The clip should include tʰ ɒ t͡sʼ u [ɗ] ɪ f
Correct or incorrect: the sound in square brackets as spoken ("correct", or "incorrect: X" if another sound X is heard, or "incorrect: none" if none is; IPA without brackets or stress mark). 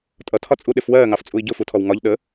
correct